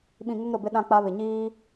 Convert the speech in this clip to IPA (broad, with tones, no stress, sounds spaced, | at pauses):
ɓ ĩ˨ ŋ ʊ˦ ŋ ɾ ʊ˨ b ɪ˦ ɗ ã˦ k͡p a˦ β ɪ˨ ɲ iː˦